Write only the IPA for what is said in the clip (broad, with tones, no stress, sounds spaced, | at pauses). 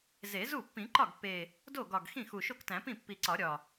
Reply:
z e˨˩˦ z u˥˩ pː ĩ˨˩˦ ǃ ɒ˥˩ ɡ pː e˨˩ | d o˥˩ ɡ ɒ˨˩ ɡ x ĩ˥˩ x u˨˩ ʃ o˥˩ k t æ̃˨˩˦ p ĩ˥˩ pː i˨˩ ǀ ɒ˨˩˦ ɾʲ ɒ˨˩